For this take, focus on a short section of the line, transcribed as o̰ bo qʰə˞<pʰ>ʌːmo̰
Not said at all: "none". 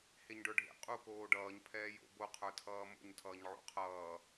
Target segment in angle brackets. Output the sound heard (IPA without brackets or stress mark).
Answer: tʰ